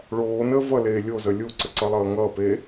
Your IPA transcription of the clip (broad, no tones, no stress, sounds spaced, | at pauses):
ɭ oː n ə v ʌ l eː lʲ o z ə lʲ u ǀ ə ǀ ʌ lˠ ʌː ŋ ʌː p eː